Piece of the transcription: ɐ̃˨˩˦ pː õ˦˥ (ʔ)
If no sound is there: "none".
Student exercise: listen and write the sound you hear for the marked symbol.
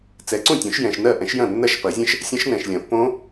none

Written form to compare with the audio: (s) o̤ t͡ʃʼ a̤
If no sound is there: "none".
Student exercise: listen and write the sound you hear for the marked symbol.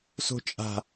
s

